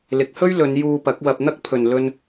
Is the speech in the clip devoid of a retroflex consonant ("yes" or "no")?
yes